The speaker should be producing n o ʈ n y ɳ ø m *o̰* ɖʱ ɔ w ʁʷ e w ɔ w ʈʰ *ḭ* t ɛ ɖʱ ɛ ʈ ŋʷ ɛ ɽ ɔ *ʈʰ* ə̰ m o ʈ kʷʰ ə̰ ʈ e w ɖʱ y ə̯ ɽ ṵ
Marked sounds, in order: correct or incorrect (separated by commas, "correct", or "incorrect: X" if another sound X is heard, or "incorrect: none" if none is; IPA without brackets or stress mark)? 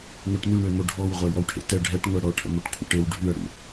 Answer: incorrect: o, incorrect: ḛ, correct